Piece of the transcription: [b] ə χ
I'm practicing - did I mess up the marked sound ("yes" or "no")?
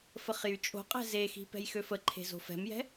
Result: yes